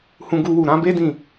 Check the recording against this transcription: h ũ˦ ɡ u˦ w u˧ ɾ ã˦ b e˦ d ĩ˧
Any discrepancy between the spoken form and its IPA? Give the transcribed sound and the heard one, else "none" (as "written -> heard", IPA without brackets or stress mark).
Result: none